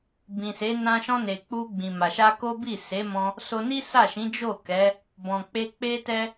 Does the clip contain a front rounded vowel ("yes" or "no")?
no